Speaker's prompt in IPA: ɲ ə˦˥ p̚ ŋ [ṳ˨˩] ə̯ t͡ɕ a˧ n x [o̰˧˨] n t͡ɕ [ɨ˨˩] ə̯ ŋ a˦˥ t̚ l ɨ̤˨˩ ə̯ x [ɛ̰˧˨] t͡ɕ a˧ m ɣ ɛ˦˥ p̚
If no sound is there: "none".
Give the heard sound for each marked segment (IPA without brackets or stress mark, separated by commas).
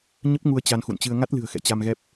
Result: u˧, ṵ˧˨, ɨ˧, ɛ̰˧˨